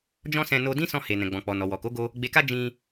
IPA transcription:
d͡ʒɔ̃˦sɛ̃˧ no˧ dĩ˦sɔ̃˧he˨ nɛ̃˨ɡ͡bɔ̃˨k͡pɔ˨ nɔ˨wɔ˨ko˨˦ɡo˧ | ɡ͡be˧ka˦ d͡ʒĩ˧

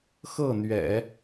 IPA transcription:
xɤ˥˩n̪ɥɛ̰˨˩˦

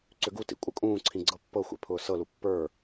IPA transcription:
ǀʏɡutḭ kʷʼɤkʼũːǀʰĩ ɡ͡ǀɤpːɤxʷḛ pʰʊːsɤlu pːə˞

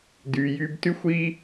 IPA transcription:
dy˧jy˦b ty˦xʷi˦

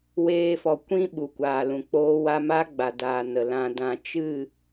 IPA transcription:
weː˧fɔ˨ kʷĩ˦ ɓu˨kʷaː˨lũ˨k͡poː˦ wa˧ ma˦ɡ͡ba˨daː˨ nə˨lã˧dã˧ t͡ʃɨ˦˨

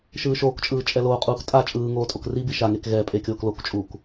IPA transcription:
ʃɯːʃoːkt͡ʃʼɯː t͡ʃʼɛloːqʼuːk tʼa t͡ʃʼɯːŋoː tʼokribi ʃaŋek ɣɛ pʼekʲoːklokt͡ʃʼuːk

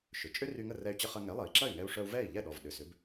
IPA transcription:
ʃʏ˩t͡ʃʼʏ˥ ry˧ŋə˥˩ rɛ˧y̯t͡ɕə˧χɐ˧ ŋɛ˩˥lˠɐ˩i̯ǁɐ˥˩y̯ ŋɛ˧u̯ʂœ˧u̯ vɛ˥˩i̯ʎɛ˥˩ɗɔ˩v ɗʏ˩sʏ˩˥b

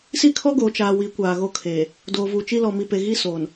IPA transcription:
si˦kʰɔ˦ɡoː˨ t͡ʃaː˨ wi˨˦ kʷaː˨ɣo˦kʰeː˨ | doː˨vuː˨t͡ʃi˦ lɔ˨ mi˨pe˨ ɣi˦soː˨n

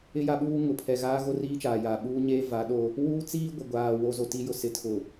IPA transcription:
ɪ˦ja˦ɓuː˦ ŋʊ˨pʰɛ˨ɣaː˦ ɣo˦riː˦t͡ʃaː˨jaː˨ ɓuː˦ɲeː˦va˨˦ɗo˦ | wuː˦t͡siː˦ ɡʷɪ˨ɡʷaː˨ wo˨zo˨ti˨jʊ˨ sɪ˨˦tʰʊ˨

